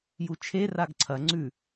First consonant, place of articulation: palatal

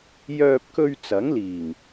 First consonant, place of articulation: palatal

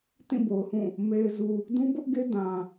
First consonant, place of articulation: alveolar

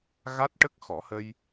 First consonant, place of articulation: velar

